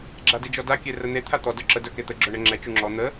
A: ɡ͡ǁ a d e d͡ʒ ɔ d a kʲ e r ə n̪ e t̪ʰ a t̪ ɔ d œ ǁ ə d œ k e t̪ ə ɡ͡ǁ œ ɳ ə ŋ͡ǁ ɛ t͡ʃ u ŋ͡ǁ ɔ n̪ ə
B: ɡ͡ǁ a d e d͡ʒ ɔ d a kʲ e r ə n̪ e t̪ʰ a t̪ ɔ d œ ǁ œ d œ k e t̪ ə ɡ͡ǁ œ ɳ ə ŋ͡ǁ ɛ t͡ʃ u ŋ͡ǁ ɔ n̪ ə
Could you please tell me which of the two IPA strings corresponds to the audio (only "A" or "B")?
A